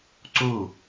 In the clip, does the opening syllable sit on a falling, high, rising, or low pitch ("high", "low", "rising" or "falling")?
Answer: falling